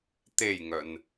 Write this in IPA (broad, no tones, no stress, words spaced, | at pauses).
t̪ejŋœn